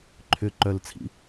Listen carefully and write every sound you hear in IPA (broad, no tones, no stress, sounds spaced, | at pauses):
ǃʰ ʏ ǃ œ l t͡sʰ ḭ